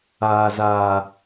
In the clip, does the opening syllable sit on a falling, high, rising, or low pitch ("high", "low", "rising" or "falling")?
low